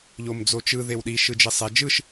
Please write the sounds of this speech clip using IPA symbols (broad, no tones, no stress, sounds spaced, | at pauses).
ʎ o m d͡z o t͡ʃ ɯ ð e w ɗ i ʃ ɯ d͡ʒ i sˤ e d͡ʒ ɯ ʃ